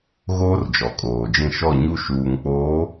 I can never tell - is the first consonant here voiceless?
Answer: no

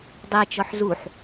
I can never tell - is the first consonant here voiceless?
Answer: no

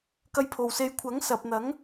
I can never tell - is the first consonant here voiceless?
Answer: yes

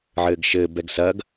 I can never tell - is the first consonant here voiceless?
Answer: no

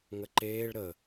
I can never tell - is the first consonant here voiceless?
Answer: no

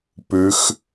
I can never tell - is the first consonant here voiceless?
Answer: yes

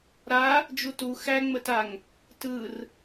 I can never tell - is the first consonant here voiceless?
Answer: no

